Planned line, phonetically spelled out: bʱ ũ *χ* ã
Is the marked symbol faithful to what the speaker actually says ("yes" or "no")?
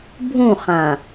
yes